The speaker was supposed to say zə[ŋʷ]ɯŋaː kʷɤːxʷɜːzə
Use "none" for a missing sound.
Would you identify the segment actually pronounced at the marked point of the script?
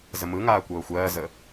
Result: m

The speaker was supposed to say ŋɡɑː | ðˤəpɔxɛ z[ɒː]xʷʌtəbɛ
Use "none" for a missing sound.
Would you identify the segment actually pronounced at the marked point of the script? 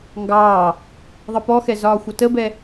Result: ɒː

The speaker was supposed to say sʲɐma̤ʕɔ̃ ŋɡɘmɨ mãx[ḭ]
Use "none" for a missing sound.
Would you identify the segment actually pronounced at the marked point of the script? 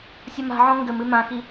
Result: i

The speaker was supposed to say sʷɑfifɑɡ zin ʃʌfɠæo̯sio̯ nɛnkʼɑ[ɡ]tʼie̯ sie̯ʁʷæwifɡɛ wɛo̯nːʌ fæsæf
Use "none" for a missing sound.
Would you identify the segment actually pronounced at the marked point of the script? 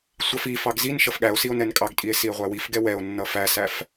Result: ɡ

